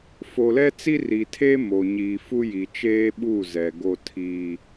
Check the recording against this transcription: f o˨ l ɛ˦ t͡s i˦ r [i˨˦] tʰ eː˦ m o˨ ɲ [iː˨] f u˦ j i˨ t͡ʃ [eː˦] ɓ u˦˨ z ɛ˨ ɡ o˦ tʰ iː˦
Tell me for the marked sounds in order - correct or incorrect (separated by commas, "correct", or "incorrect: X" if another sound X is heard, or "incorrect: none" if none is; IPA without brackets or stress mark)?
incorrect: i˨, correct, correct